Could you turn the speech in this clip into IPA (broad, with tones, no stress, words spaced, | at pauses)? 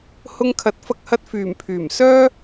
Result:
hʊ˧ŋkʰɐ˨˥t̚fɐ˧k̚hɐ˧t̚ fyː˨˩mpʰyː˨˩m sœː˥